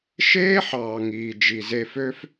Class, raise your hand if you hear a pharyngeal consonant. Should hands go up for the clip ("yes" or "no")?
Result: yes